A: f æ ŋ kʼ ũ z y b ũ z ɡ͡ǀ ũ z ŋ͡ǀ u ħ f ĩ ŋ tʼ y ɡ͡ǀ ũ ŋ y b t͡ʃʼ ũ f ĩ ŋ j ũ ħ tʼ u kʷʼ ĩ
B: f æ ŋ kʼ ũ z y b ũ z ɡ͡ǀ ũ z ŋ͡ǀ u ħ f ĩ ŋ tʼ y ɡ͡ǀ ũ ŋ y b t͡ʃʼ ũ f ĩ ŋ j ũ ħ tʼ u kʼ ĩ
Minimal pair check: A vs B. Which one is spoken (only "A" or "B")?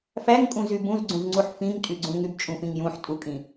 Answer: B